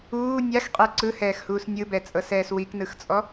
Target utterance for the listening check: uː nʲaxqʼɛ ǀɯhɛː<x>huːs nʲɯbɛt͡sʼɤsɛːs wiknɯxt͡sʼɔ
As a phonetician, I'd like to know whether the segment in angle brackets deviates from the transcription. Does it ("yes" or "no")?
no